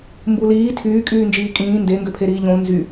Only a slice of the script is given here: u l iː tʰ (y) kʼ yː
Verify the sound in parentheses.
incorrect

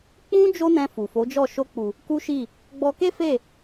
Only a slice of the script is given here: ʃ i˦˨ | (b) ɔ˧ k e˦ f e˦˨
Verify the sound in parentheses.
incorrect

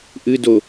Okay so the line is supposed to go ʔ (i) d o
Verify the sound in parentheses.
incorrect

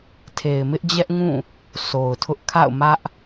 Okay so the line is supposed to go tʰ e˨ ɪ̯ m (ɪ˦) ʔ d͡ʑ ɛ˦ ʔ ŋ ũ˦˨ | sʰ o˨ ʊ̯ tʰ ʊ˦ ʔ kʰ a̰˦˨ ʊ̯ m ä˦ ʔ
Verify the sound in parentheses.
correct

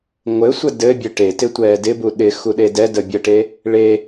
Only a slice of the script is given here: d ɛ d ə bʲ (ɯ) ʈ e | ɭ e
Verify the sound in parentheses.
incorrect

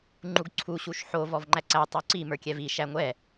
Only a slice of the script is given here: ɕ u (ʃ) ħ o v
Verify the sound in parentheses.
correct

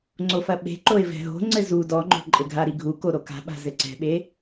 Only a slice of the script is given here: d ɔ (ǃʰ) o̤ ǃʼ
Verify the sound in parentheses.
incorrect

